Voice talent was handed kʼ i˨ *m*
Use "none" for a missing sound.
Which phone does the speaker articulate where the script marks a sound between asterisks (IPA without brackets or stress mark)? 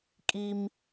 m